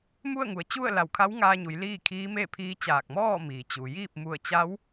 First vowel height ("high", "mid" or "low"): high